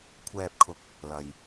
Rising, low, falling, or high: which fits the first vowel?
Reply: low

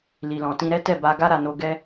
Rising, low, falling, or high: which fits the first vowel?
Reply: low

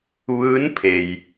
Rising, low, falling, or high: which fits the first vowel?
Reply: rising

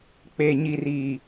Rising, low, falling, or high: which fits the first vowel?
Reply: low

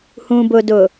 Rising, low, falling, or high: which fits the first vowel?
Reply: low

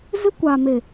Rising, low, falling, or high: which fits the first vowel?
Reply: high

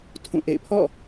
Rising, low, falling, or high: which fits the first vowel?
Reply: falling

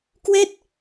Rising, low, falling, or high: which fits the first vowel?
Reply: falling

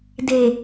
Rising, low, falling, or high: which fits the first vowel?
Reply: low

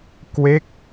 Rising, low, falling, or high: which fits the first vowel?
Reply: falling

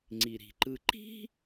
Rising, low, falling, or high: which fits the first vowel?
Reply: low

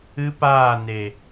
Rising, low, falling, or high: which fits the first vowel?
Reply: high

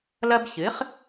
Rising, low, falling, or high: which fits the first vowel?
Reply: high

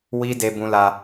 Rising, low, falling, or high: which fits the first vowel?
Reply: high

